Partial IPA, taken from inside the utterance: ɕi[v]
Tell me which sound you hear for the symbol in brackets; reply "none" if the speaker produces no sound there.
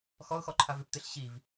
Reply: v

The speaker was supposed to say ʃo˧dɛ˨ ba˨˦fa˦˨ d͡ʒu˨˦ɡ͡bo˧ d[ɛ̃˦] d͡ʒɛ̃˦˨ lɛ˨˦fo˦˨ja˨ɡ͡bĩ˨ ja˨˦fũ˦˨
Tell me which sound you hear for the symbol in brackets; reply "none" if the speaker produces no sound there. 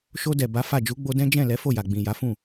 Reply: ɛ̃˦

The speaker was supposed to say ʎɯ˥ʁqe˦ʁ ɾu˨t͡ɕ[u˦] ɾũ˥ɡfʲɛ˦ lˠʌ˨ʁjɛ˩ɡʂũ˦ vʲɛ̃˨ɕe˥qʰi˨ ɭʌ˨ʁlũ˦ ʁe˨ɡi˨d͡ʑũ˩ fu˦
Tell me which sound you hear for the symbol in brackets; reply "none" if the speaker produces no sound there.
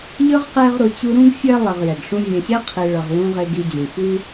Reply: u˥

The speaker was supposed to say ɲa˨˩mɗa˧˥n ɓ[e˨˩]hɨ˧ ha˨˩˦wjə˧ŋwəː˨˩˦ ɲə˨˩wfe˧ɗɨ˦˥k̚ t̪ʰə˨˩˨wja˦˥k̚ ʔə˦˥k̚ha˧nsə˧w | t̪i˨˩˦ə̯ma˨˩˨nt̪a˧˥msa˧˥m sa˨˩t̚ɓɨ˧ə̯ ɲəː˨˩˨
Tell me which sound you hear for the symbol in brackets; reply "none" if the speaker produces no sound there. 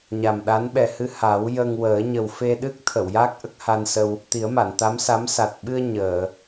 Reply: ɛ˨˩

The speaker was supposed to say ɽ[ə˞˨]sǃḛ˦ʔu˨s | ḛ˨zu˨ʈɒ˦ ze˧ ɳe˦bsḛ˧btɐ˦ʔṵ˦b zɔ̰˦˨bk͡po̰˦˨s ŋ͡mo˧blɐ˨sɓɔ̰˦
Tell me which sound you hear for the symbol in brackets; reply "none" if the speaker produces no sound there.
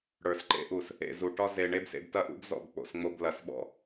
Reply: ə˞˨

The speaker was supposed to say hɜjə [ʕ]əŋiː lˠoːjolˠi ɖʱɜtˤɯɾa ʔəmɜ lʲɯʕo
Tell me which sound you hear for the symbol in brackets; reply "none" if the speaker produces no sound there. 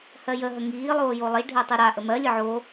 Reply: ɦ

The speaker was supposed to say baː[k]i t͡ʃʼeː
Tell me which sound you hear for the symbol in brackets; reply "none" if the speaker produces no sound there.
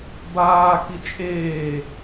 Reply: k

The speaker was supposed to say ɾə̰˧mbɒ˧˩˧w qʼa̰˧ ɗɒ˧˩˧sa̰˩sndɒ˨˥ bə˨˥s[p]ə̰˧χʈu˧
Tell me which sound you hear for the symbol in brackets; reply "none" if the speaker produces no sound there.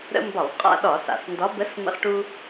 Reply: m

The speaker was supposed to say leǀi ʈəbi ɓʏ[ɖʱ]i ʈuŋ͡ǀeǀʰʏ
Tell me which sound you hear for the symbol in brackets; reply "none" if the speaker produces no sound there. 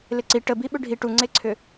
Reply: ɖʱ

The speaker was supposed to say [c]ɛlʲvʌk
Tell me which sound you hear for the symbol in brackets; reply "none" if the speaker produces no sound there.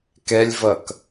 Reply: k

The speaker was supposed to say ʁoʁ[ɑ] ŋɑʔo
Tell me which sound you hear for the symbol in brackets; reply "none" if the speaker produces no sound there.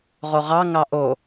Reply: ɑ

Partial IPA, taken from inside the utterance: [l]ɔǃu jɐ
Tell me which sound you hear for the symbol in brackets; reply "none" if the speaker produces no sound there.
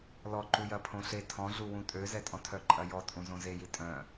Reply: l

